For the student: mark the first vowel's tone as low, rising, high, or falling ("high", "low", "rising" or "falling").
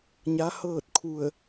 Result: rising